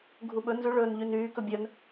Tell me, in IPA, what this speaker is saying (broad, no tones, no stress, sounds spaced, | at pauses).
ɡʱ u ɓ ɵ n z ʉ ɭ ɵː n ʎ y n yː k ɵ bʲ œ n